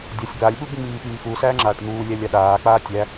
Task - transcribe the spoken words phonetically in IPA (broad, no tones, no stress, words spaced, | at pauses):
dʲasʲ balʲɓub ŋ͡miːpiːxusæː ŋ͡ǁaːʈn̪uːlʲælʲ aɗaːk͡paː tʲæ